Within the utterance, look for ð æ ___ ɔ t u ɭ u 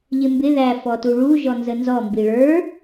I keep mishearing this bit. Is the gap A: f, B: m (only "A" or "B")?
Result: A